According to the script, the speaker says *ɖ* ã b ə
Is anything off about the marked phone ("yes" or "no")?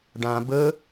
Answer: no